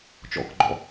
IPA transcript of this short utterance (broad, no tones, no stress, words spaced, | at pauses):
t͡ʃɔ̰kɡ͡ǃɔ̰